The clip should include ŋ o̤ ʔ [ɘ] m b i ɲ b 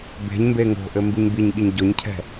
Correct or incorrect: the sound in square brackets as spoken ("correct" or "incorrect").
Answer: correct